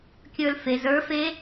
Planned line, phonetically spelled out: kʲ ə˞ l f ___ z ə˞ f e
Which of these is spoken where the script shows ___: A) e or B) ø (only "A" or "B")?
A